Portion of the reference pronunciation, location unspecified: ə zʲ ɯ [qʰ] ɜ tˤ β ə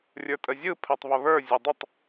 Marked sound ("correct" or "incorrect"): incorrect